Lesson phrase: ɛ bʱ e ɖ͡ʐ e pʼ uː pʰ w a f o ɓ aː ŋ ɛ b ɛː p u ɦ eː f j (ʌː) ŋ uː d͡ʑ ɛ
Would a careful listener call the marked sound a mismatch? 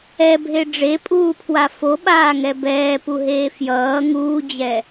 no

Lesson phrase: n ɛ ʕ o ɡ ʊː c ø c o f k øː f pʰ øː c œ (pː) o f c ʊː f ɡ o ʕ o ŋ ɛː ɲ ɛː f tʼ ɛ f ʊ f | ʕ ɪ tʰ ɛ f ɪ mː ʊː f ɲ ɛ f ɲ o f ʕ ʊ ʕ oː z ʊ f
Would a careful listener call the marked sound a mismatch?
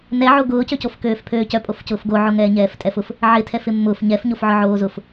yes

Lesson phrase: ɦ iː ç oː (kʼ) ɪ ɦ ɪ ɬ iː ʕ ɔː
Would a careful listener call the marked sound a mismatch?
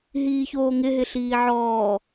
yes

